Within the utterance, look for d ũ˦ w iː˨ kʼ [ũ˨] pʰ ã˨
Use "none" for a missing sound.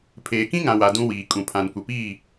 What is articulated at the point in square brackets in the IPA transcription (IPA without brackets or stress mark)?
ũ˨